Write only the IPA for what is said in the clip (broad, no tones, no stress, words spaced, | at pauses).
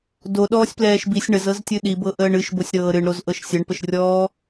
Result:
do ɗɔːsʲplɛːʃbisʲ ɳəzɤztʲɨ ɗibɤ ʔəːɳɨʃbosʲɾɤː ɾɨɳɾoz ʔɤʃsʲəɳpəʃrʲɔː